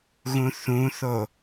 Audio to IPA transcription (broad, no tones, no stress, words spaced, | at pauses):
ɣũθũθo